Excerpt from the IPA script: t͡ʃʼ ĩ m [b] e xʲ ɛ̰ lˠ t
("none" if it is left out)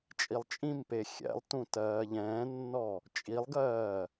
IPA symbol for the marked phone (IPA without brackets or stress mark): p